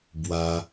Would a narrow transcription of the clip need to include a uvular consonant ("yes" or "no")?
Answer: no